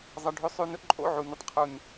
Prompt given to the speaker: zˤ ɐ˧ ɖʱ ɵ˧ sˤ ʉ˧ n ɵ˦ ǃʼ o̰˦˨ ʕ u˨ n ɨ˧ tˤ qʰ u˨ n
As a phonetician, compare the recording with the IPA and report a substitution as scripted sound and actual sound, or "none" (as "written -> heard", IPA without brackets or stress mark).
none